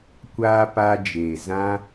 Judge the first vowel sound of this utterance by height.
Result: low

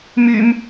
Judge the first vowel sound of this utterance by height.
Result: high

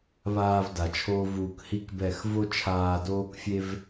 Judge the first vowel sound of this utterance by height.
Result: low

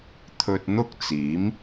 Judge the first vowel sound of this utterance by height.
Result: mid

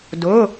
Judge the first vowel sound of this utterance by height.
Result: high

